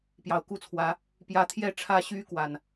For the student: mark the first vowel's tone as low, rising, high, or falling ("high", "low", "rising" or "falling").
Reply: low